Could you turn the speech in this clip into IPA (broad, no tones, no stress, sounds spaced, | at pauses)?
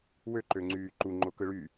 w ø ǃ ø ŋ͡ǀ yː ǃ u ŋ͡ǃ o k ɯ ɭ y